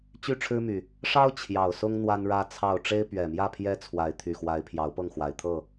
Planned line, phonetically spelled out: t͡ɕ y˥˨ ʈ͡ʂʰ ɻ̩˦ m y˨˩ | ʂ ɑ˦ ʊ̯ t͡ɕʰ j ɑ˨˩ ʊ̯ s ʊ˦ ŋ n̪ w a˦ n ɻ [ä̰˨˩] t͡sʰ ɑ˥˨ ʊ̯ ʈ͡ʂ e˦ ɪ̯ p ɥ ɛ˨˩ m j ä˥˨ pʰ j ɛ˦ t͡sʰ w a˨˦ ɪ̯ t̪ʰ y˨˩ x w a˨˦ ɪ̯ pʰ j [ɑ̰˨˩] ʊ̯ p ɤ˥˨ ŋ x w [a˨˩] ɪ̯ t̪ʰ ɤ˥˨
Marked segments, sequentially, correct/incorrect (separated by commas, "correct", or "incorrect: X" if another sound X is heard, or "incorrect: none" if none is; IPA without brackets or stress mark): incorrect: ä˦, incorrect: ɑ˨˦, correct